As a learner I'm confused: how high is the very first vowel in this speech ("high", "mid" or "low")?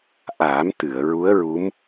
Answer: low